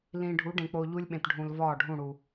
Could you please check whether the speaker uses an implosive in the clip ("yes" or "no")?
yes